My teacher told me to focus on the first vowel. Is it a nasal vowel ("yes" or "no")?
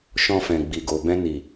yes